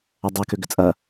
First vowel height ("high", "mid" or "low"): low